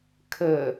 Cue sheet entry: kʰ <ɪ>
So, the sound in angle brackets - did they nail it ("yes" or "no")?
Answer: no